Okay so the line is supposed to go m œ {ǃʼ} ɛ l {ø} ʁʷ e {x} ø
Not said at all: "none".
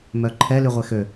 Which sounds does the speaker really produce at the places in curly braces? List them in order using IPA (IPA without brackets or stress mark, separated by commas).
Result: ǃʰ, y, x